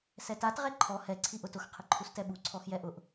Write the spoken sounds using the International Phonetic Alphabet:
s ɛ t a t ʁ ɛ ǃʰ ɔ h ɛ ǀʰ i ʔ ʊ t ʊ x qʰ ɪ ǃʰ u s t ɛ ɓ u ǀʰ ɔ x j ɛ ʔ ʊ ʔ

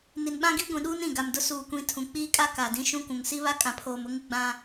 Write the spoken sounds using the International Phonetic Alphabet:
n i˨ n ɓ ã˦ ɡ i˦ ɡʷ ĩ˨ ɗ uː˦ n ĩ˨ ɡ a˨ m d ʊ˦ s uː˨ kʷ ĩ˨˦ tʰ ũ˨ k͡p iː˦ kʼ a˦ k a˨ d ĩ˦ ʃ ũ˦ kʷ ũ˨ ŋ s i˦ β a˦ kʼ ã˨ pʰ oː˨ m ʊ˦ ŋ ɪ˦ ɡ͡b ã˦

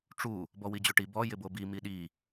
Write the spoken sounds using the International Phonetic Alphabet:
ʈ͡ʂ u | b ɔ w i d͡ʑ o ʈ i b ɔ j ɪ b o b i m i ɗ i

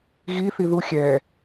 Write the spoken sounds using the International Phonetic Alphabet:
ɣ i θ i ð u xʲ ɛ

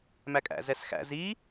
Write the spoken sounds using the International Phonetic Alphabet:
m æ kʼ æ̰ z ɛ s x æ̰ z i

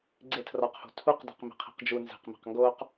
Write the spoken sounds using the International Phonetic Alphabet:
ɡ͡ǀ e tʰ r ɒ q h o̤ tʰ u q d æ̤ q m e̤ qʰ i̤ q d͡ʒ u n z e̤ q m e̤ q ŋ ɡ o q

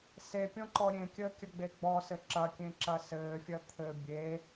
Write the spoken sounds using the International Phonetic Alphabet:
s e pʲ ɔ̃ ǃ ɔ ɾʲ ẽ kʲ əː kʲ ɐ ɡ͡b e ɡ͡b ɔ s ɘ ǁ ɐ kʲ ẽ ǁ ɐ s ɘː fʲ ɐ t̪ʰ ɘ bʲ e

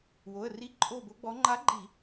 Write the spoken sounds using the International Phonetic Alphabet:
w o˩˧˩ ə̯ r i˧˥˧ ǃʼ o˦˨ b o˧˥ ɡ͡b ɔ˧˥ ŋ͡ǃ a˧˥ ɡ͡ǃ i˧˩˧

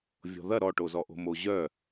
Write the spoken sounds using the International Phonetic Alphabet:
vʲ ɔ̤ ð ɐ ɾ ɔ ʈ o z ɔ ʔ o̤ m o ʑ œ

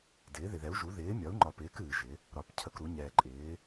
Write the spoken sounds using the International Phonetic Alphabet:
d ɪː˩˥ ð ɪ˨ ð ɛ˩˥ u̯ ʒ u˩˥ ð ɪː˩˥ mʲ ɒ˩˥ u̯ ŋ͡ǃ ɒ˨ p ɪː˩˥ k ɨː˨ ʒ ɪ˩˥ | ɾ ɒ˨ p cʰ ə˨ k ɾ u˩˥ ɲ ɛː˨ ǃʼ ɪː˩˥

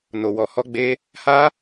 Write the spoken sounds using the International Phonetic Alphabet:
n o˧ w ɔ˧ h ɔ˦ ɡ͡b e˦ | h a˦

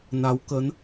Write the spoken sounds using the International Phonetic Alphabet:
n a˨˦ w k ə˨˦ n

